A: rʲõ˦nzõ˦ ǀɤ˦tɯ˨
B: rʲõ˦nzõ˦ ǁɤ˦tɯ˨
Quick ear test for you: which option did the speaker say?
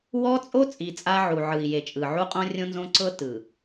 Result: A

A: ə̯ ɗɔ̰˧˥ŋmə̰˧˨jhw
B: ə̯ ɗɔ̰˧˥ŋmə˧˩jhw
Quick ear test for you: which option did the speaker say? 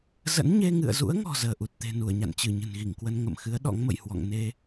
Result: A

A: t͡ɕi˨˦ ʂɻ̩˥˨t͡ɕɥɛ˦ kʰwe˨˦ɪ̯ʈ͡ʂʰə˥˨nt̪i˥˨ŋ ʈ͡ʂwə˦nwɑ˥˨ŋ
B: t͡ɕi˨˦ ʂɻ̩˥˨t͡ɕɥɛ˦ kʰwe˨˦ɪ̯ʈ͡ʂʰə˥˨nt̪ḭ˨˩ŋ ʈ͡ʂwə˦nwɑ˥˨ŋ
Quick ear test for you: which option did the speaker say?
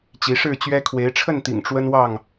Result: B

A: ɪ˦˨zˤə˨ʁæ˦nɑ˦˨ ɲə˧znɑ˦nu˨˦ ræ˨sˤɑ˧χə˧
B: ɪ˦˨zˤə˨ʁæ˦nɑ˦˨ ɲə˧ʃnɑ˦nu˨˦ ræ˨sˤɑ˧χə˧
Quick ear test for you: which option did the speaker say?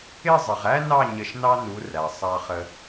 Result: B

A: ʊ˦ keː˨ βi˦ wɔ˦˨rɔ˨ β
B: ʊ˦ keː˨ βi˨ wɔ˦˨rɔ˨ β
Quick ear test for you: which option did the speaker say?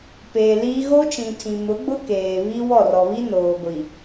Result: A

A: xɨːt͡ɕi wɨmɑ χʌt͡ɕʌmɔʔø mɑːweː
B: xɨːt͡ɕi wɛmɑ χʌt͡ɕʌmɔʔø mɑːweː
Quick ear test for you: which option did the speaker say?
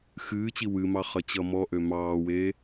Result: A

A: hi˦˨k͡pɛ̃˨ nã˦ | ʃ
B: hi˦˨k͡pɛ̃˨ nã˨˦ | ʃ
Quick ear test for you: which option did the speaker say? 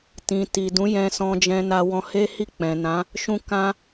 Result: B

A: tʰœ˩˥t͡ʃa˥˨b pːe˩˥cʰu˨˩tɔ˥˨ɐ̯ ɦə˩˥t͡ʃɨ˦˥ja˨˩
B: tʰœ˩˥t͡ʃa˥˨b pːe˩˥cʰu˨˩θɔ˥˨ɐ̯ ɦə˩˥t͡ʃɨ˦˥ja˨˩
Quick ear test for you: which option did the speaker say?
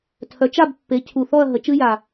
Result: B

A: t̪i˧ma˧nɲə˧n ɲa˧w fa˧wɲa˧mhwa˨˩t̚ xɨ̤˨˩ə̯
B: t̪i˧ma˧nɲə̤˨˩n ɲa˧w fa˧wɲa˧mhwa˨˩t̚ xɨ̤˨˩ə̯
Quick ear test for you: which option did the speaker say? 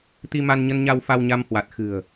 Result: A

